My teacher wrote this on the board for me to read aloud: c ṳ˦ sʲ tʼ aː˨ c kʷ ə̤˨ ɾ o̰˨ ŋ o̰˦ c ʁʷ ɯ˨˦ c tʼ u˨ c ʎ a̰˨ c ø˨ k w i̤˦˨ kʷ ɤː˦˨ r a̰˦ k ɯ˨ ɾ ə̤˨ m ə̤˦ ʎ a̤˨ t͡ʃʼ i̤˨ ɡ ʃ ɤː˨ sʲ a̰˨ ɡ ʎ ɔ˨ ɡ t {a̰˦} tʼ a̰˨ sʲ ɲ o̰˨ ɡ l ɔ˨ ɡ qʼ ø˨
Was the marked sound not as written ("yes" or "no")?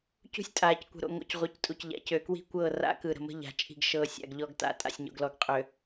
yes